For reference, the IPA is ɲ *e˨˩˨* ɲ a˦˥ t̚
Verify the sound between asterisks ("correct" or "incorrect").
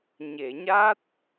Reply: correct